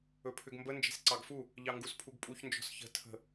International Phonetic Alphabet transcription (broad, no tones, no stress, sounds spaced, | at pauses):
ɵ pʰ ʏ ɡ m b ə n d͡ʒ e̤ s ǀ ɑ ɡ f u | ʎ ɑ ŋ ɡ u s pʰ u ɡ pʼ u ç n d͡ʒ ɔ̤ s ç ə̤ tʰ ə̤